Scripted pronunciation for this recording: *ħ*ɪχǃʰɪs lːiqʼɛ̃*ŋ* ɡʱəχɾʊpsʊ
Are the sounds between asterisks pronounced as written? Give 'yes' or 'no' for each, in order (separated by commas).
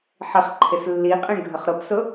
yes, no